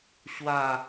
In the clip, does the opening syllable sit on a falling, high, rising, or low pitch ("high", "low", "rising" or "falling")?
falling